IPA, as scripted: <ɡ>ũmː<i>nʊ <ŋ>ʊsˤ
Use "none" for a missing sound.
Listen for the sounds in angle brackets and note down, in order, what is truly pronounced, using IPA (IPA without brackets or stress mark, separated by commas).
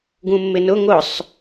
ɡ, ɪ, ŋ